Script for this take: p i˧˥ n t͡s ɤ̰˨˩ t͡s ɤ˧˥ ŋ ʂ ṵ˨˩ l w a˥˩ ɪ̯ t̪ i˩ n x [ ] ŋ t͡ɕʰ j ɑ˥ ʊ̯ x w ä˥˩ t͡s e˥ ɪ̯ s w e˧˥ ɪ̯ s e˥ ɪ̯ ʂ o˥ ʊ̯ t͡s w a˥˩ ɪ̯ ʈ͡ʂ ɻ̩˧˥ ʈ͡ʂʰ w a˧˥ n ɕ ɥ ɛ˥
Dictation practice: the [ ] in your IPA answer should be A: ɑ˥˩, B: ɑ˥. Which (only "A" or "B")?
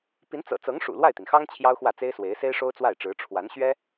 B